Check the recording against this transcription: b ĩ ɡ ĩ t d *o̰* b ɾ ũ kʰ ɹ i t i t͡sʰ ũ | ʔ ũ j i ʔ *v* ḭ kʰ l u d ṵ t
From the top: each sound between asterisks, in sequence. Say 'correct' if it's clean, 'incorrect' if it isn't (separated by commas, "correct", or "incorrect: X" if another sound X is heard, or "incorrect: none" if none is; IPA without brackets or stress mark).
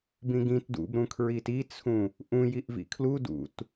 incorrect: ṵ, correct